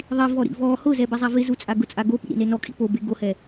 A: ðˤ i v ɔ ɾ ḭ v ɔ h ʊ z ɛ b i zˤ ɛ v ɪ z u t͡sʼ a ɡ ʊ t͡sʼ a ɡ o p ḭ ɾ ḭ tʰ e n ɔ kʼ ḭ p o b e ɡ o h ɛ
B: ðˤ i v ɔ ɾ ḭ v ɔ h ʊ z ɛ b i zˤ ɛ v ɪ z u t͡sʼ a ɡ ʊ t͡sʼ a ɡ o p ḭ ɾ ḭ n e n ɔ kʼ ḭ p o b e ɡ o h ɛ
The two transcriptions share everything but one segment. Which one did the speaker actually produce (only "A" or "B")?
B